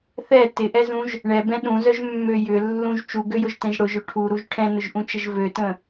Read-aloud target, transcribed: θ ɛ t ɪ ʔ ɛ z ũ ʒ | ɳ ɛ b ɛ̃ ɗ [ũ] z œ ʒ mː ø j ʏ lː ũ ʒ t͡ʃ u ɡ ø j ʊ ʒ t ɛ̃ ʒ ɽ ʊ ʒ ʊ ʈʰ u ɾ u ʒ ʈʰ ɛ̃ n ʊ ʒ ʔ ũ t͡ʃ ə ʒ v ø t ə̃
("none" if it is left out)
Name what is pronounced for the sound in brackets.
ũ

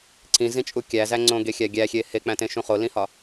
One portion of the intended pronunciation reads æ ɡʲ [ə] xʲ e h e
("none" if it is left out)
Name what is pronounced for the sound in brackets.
æ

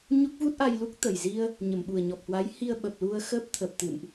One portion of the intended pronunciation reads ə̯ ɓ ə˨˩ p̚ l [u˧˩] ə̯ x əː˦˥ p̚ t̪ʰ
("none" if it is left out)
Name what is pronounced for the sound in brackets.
u˧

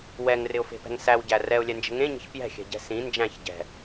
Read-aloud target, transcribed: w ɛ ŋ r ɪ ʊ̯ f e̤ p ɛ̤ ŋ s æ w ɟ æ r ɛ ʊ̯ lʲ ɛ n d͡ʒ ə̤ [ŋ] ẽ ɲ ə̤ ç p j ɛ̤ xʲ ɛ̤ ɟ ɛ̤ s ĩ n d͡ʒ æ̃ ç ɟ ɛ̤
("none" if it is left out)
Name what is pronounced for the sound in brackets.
ŋ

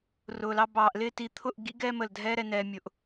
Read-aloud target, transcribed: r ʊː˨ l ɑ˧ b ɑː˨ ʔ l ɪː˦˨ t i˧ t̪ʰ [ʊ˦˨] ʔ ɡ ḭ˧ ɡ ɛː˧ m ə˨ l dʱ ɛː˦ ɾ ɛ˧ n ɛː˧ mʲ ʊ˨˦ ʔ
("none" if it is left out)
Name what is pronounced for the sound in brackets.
ʊ˦˨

